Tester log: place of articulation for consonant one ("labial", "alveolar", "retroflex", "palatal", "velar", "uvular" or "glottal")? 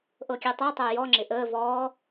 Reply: glottal